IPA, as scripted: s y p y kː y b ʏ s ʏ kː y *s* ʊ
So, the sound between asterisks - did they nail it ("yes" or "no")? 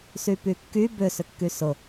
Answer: yes